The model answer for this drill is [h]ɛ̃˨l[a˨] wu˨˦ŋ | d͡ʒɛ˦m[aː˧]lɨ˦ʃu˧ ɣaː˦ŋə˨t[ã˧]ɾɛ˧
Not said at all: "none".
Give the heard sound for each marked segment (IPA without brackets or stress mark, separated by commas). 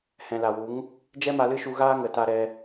h, a˨, a˧, a˧